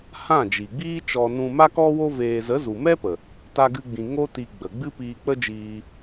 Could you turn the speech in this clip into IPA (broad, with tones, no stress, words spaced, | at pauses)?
hã˦˨ d͡ʒi˨ɡ͡biː˦t͡ʃɔ˧ nũ˧ma˦kɔ˦wo˦ veː˧ zə˨˦ zu˨mɛ˦pə˨ | ta˧ɡɨ˧ɡ͡bĩ˨ ŋo˦ti˧ ɡ͡bə˨ ɡ͡bɨ˦piː˧k͡pə˦d͡ʒiː˧